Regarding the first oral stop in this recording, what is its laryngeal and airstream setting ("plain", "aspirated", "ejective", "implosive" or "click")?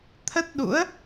aspirated